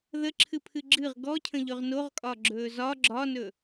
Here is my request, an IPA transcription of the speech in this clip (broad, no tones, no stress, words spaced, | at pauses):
ðəǁʰɨpʰɨ ɡ͡ǁɨʁ ɡɔcʰə̃ʎɵʁ noʁkʼɒɡ͡ǁɵː zɒ ɡ͡ǁɒnɵ